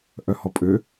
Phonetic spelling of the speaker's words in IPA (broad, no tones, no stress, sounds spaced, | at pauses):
ʔ œ h ɔ pʼ ø